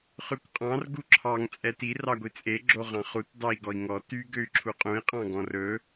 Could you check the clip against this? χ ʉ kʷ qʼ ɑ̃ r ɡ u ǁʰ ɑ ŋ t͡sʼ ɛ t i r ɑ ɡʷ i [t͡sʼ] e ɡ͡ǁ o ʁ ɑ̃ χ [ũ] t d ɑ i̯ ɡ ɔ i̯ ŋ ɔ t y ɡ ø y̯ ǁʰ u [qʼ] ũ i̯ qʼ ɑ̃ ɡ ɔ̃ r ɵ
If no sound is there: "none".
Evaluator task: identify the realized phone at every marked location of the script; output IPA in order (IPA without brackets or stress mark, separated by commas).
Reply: t͡sʼ, u, qʼ